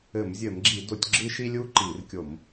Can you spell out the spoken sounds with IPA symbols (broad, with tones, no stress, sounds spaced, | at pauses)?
ɘ˧˩˧ m zʲ ɘ˧˩˧ m ɡ͡ǁ i˧˩˧ d o˧˩˧ tʲ ɡ͡ǁ ɨ˥ ʃ i˥ lʲ u˥ ǃ i˧˩˧ r kʲ o˧˩˧ m